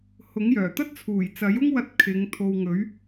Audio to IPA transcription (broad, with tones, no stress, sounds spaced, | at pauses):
h ʊ˨˥ ŋ j œː˨˩ t̪ ɐ˥ t̚ t͡sʰ uː˨˩ j t͡s ɐ˨˥ j ʊ˥ ŋ w ɐ˧ t̚ kʰ ɪ˨˧ ŋ t̪ʰ o˨ w ŋ ɵ˨˥ ɥ